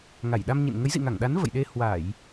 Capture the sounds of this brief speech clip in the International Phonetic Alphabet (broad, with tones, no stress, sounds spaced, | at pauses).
ŋ a˧˩ j ɗ a˧ m ɲ ḭ˧˨ n ŋ ə˨˦ j z ḭ˧˨ ŋ a˧˩ ŋ ɗ a˨˦ n v ə̰˧˨ j ɗ e˧ h w a˧˩˨ j